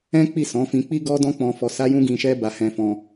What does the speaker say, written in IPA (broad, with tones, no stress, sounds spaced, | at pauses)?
ɛ̃˦ k͡p i˦˨ s ɔ̃˨˦ f ĩ˧ k͡p i˦ ɡ ɔ˦ d ɔ̃˦ k͡p ɔ̃˧ f ɔ˧ s a˦ j ũ˦ ɡ ĩ˧ ʃ ɛ˦ b a˧ h ɛ̃˧ f ɔ̃˧